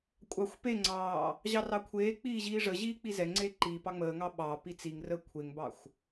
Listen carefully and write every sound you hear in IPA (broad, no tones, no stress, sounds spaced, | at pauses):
kʷʼ ɑ xʷ p e ŋ͡ǀ ɑː | ʑ ɑ r ɑ kʷʰ eː k͡p iː ʑ iː ʐ ə ʑ iː k͡p i z ɛ ŋ͡ǀ eː ǃ iː p ɑ ŋ͡m əː ŋ ɑ ɓ ɑ p i t͡s i ŋ r əː kʷʰ e ŋ b ɑ xʷ